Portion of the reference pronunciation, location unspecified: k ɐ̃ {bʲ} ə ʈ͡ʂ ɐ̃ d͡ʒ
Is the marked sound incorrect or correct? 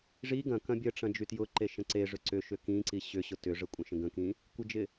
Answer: correct